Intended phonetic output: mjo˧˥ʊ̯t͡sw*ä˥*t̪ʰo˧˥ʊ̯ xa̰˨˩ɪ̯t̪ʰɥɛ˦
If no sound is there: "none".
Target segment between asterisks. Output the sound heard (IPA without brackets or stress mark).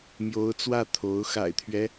ä˥˩